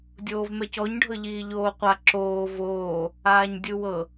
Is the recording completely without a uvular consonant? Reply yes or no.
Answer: no